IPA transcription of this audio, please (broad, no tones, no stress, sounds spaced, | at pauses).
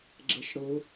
ɡ͡ǁ ə ʃ ɽ ʊː